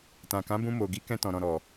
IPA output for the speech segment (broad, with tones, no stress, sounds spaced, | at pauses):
t ã˨ k ã˨˦ b ũ˧ m o˨ ɡ i˨˦ k ɛ̃˧ t ɔ̃˨ ɾ ɔ̃˨ ɾ ɔ˨